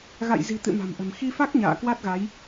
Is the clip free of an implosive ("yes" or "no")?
yes